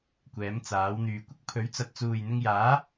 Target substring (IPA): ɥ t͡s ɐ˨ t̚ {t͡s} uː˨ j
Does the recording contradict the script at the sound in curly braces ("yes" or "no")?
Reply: no